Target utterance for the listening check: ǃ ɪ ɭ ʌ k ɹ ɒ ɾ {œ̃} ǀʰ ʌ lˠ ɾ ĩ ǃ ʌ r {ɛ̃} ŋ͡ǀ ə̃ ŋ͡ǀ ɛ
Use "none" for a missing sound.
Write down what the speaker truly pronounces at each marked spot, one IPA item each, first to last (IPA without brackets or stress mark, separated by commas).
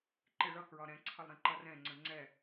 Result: ɛ̃, ɛ̃